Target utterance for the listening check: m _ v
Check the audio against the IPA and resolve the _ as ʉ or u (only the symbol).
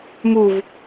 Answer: u